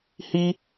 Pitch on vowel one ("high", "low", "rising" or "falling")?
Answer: high